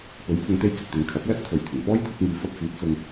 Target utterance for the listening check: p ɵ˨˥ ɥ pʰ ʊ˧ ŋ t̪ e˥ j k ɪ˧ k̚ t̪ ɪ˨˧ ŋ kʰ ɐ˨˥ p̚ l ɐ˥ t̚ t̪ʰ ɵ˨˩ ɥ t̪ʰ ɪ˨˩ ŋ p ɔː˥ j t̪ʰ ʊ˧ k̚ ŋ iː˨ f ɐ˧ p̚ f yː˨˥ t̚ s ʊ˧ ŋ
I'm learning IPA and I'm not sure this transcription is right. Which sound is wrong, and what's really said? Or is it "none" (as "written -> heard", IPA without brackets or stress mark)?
none